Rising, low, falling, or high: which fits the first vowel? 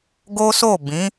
high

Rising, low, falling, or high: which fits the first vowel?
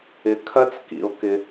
rising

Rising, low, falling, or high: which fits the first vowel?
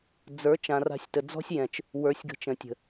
rising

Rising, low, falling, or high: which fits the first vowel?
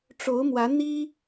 rising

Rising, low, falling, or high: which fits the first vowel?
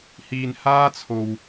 low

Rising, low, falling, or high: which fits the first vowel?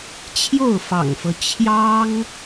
falling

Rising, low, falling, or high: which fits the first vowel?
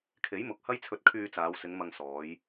rising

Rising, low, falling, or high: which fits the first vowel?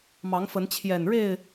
rising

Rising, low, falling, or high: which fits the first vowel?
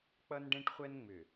high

